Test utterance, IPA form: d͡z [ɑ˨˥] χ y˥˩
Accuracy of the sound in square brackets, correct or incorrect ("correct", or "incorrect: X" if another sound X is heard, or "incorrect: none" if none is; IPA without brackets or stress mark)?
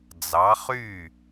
correct